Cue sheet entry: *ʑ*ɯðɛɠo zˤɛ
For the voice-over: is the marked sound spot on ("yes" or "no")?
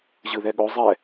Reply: yes